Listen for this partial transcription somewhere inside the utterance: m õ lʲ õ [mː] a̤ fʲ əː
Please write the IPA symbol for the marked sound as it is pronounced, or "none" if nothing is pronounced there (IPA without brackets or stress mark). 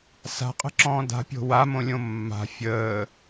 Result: mː